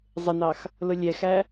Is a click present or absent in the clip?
absent